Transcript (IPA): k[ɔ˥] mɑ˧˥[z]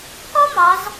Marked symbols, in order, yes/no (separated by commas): yes, yes